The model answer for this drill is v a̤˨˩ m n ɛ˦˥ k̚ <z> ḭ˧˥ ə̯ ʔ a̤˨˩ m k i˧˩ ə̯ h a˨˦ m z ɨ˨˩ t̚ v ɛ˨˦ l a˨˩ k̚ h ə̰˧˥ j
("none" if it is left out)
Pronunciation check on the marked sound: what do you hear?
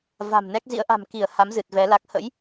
z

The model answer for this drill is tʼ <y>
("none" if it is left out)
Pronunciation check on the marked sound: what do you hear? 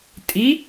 i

